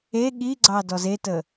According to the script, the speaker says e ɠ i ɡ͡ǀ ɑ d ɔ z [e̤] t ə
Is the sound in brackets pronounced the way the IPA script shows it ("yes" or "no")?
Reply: no